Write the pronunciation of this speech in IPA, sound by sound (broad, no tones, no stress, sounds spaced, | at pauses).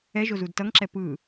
ɛ ʒ o z u d t ʌ ŋ ǁ ɛ p ɯ